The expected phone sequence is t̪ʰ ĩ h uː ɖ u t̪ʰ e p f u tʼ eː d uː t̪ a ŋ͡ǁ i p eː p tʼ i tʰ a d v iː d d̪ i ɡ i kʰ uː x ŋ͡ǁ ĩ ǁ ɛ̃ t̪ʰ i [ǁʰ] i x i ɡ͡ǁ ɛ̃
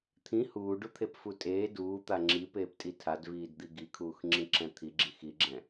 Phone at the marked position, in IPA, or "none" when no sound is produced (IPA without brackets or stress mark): ɡ͡ǁ